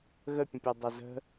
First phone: ɣ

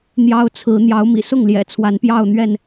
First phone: n̪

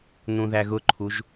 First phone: n̪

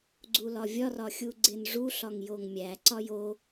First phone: ɡ͡ǀ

